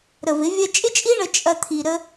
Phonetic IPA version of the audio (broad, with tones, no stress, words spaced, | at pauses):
ɾə˨vɪ˨˦ vʲɐ˧t͡ʃʼɪ˦t͡ʃʼi˦ ɳə˧ t͡ʃʼɐ˧ t̪ʰi˧ɾə˦